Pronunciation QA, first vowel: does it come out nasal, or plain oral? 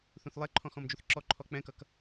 nasal